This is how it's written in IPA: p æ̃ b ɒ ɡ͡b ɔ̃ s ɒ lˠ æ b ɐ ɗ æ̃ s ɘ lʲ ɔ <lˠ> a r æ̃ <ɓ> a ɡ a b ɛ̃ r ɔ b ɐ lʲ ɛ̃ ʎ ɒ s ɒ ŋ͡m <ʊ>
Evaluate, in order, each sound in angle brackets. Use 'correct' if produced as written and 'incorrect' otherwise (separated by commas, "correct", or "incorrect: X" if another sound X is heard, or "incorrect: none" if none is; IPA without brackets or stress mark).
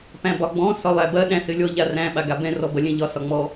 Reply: incorrect: ʎ, correct, incorrect: ɔ